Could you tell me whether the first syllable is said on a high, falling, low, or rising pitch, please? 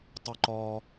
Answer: high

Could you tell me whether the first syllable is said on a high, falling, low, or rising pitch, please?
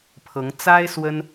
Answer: rising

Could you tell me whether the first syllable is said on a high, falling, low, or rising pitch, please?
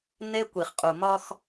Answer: high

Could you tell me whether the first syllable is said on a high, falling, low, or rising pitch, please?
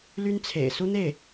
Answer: high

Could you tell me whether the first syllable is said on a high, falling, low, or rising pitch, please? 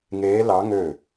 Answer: rising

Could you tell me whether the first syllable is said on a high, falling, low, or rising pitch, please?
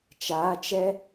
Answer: rising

